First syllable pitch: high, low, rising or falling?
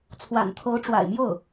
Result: low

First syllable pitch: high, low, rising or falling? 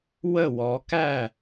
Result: falling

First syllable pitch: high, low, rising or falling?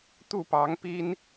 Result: falling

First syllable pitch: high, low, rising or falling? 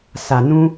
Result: low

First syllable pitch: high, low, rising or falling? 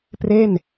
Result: falling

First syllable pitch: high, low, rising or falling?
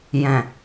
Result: low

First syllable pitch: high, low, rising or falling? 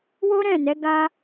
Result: high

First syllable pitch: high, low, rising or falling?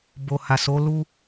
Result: low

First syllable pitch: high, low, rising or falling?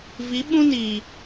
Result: rising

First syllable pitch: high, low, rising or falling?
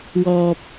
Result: low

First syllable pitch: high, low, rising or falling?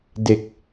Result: low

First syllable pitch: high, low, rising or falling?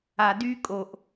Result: low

